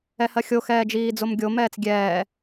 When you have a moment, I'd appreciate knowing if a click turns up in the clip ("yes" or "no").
no